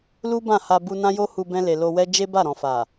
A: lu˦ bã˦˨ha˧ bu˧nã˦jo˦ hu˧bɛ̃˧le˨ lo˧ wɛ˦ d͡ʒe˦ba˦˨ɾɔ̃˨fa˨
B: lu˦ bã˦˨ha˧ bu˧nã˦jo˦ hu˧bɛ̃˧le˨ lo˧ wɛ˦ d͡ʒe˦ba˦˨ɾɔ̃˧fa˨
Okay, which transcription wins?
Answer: A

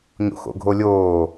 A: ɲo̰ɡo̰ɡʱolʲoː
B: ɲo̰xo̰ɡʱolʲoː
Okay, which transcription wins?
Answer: B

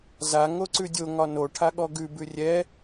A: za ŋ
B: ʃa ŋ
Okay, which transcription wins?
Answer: A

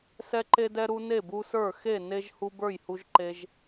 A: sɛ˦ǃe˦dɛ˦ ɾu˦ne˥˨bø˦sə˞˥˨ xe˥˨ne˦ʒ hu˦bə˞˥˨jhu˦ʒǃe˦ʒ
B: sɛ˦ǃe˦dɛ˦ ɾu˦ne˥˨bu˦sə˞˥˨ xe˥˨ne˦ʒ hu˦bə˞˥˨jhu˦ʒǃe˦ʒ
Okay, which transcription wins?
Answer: B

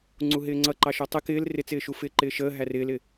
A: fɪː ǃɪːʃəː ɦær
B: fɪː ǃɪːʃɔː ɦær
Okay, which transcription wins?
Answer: A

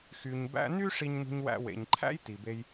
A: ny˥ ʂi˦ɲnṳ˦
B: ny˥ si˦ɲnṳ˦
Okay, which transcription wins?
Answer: A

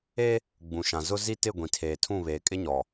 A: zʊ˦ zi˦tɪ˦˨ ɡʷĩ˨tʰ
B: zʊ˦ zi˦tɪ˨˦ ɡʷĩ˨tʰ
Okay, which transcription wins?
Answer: A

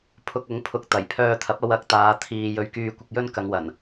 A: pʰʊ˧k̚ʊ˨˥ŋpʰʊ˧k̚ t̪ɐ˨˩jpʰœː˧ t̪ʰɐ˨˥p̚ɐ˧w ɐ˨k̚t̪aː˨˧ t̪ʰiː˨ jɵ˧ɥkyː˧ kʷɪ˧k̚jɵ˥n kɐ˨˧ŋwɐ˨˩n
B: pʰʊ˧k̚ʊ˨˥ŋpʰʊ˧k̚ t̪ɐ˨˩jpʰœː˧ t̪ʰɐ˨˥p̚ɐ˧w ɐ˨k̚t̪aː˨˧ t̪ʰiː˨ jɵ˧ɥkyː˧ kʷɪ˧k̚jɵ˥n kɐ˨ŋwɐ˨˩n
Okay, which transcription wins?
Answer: A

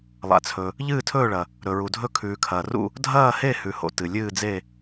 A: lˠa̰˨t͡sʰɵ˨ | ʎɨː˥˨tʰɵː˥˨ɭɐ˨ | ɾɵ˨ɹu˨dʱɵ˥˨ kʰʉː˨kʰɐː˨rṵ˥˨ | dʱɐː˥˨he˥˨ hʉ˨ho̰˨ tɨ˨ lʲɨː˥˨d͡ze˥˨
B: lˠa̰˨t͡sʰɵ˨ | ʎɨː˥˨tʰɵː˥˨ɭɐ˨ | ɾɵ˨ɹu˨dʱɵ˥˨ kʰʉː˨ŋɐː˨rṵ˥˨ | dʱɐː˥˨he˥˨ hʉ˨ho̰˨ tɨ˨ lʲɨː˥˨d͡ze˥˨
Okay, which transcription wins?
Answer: A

